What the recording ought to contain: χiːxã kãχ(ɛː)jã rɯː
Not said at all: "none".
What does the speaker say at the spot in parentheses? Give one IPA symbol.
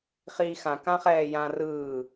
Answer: ɛː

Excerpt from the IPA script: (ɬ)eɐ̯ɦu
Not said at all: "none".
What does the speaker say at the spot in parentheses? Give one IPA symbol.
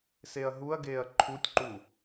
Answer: s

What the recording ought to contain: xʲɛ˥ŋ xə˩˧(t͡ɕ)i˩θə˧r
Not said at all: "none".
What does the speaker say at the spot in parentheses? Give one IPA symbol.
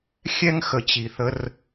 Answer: t͡ɕ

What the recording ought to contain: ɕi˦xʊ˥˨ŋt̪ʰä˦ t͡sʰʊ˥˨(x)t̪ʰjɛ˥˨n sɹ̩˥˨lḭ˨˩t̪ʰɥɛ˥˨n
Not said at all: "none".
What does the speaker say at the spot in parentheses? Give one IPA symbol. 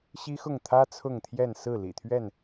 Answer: ŋ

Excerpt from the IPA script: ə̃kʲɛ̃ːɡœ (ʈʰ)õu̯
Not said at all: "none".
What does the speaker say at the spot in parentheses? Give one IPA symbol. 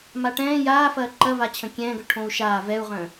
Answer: ʈʰ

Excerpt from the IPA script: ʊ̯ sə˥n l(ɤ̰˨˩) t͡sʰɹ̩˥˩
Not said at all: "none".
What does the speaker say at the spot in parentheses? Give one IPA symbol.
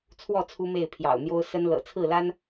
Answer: ɤ̰˨˩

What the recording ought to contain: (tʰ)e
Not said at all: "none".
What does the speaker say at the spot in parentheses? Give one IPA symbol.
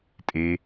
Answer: tʼ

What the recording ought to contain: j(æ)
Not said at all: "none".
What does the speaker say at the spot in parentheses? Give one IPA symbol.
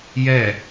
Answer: ɛ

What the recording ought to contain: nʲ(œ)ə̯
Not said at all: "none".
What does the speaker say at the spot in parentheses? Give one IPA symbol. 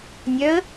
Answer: œ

